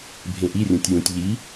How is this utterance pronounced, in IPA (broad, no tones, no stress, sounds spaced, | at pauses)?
bʱ ẽ ʔ i rʲ õ tʲ j ũ tʲ ʎ i